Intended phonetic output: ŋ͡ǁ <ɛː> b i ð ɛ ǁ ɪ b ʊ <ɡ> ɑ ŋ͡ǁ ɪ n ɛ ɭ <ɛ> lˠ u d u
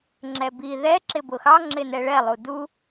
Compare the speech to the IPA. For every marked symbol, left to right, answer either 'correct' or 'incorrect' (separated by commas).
incorrect, incorrect, correct